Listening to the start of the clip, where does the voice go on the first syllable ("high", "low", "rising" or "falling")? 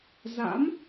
rising